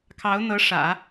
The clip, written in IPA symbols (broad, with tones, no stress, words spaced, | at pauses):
kʰɑ˧˥ʊ̯n̪ɤ˧˥ ʂä̰˨˩˦